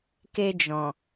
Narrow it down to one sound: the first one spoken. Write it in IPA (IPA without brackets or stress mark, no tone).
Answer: k